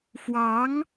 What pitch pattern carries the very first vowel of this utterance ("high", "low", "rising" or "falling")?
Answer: rising